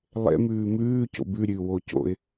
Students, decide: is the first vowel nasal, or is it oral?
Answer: oral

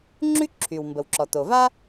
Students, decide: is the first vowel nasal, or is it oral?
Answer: oral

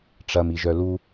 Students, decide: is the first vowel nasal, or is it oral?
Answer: oral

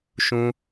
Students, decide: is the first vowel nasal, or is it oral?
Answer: nasal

